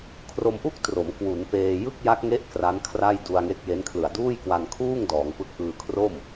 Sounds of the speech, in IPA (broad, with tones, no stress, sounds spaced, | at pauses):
kʰ r o˧ m ʔ u˥˩ k̚ t r o˩˦ m k w u˩˦ n p eː˧ j ɯ˥˩ k̚ j a˦˥ k̚ ŋ e˦˥ ʔ k r a˦˥ n kʰ r a˥˩ j d u˧ a̯ ŋ e˦˥ k̚ j e˦˥ n kʰ l ɯ˨˩ a̯ d uː˥˩ j k w a˧ n kʰ uː˥˩ ŋ d ɔː˩˦ ŋ p ɯ˦˥ k̚ ʔ ɯː˧ kʰ r o˥˩ m